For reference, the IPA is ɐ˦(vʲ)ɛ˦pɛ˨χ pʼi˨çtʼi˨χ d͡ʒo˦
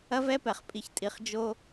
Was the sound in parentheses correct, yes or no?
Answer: no